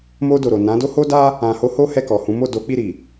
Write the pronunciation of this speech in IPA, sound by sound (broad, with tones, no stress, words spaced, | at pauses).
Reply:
mo˧ do˨ɾo˨ nã˨˦do˦ho˦da˦ | ã˨ho˨˦ ho˦hɛ˦˨kɔ˨ hũ˨˦mo˦˨do˨˦k͡pi˦˨ ɾi˨